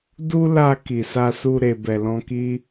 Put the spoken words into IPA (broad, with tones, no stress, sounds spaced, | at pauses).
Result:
d u˦ l a˧ k i˨ s a˧ s u˧ ɾ e˨ b ɛ˨ l ɔ̃˧ k i˦